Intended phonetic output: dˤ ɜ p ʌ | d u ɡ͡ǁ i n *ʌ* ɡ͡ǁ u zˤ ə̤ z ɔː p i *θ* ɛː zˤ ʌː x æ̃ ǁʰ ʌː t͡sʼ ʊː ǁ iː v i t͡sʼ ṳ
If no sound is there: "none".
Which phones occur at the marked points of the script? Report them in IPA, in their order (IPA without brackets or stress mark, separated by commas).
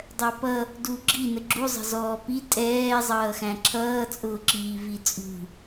ə, tʼ